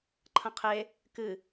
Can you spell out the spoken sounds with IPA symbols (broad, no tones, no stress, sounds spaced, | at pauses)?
ǃʰ ɐ̃ qʰ e | k ɨ